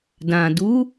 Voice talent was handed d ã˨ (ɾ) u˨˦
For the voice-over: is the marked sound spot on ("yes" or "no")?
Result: no